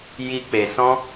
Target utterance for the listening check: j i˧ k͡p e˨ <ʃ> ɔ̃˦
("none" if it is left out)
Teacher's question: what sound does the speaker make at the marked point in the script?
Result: s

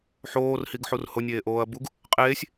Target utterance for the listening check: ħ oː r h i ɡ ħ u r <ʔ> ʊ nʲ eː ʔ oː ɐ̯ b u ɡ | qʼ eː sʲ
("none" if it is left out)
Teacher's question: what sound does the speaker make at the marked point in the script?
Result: h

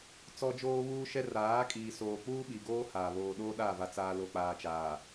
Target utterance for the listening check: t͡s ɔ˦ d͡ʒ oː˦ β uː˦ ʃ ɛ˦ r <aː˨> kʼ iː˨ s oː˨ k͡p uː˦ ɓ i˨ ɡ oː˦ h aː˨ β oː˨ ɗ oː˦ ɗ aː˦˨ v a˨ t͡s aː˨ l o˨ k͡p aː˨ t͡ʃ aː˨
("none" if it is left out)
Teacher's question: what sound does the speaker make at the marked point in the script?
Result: aː˨˦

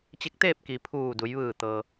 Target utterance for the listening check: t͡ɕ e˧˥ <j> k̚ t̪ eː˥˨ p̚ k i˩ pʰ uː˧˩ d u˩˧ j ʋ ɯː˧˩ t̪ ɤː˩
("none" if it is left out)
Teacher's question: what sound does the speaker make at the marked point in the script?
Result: none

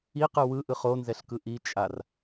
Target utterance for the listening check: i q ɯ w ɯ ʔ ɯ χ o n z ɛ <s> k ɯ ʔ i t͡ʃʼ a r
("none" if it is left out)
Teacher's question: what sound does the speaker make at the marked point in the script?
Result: ɬ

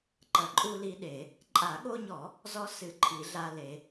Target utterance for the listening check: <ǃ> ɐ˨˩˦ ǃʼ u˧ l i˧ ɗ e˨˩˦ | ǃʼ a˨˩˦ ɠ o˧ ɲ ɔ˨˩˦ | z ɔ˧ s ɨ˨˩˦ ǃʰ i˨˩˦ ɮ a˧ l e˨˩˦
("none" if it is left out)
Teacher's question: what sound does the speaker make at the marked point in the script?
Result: ǃ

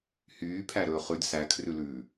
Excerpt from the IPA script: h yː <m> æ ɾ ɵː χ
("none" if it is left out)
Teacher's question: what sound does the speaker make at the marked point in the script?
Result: pʰ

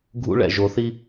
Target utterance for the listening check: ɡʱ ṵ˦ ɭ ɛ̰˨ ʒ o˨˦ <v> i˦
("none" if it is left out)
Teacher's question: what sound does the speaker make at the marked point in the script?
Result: θ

